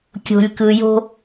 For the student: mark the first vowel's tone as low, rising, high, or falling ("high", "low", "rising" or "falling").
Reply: low